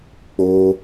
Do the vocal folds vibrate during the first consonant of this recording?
no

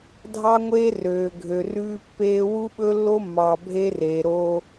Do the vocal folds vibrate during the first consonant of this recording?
yes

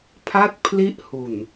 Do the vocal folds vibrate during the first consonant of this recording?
no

